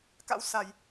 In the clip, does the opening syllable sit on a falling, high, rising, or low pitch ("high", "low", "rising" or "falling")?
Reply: rising